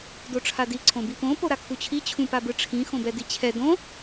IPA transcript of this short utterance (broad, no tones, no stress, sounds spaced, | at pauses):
d o ʈ͡ʂʰ a d i ǀʰ õ b i p õ p o ɾ a kʰ u t͡ɕʰ i t͡ɕʰ ũ p a b ɯ ʈ͡ʂʰ ĩ x õ b ɛ d i t͡ɕʰ ɛ d õ